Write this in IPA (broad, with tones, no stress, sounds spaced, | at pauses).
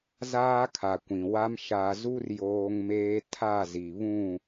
z aː˦ kʰ a˨ kʷ ĩ˨ w a˦ m ʃ a˨ z u˦ r j oː˦ ŋ m eː˦ tʰ a˦˨ z i˨ β ũ˦˨